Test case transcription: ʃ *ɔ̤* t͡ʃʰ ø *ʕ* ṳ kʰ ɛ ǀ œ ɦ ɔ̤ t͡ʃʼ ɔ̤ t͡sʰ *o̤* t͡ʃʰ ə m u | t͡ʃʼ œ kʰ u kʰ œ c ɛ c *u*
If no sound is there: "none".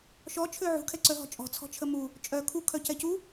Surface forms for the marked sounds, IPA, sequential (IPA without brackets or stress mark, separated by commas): ɔ, ʕ, ɔ̤, u